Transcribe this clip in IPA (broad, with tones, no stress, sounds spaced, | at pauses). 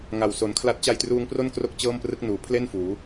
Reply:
ŋ a˨˩ w s o˩˦ n kʰ l a˦˥ t̚ t͡ɕ a˧ j t r uː˧ ŋ p r o˥˩ n k r o˥˩ k̚ t͡ɕ ɤː˥˩ m p r ɯ˦˥ k̚ n uː˩˦ pʰ l e˥˩ n f uː˩˦